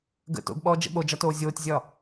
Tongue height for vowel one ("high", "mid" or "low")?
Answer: mid